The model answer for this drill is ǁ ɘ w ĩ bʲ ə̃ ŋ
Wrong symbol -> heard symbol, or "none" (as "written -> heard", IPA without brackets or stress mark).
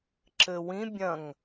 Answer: ə̃ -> ɐ̃